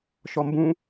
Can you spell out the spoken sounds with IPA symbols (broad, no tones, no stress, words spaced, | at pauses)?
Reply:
ʃɔmbũ